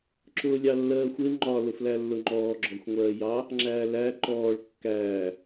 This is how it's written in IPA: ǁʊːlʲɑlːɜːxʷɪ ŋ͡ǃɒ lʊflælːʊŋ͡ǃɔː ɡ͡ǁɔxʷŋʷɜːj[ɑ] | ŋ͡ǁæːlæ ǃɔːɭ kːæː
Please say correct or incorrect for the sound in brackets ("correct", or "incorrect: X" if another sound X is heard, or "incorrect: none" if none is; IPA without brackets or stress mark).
correct